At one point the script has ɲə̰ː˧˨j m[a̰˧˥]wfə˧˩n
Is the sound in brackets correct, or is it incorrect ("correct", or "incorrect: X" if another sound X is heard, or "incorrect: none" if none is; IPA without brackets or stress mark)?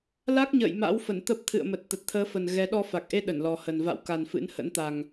correct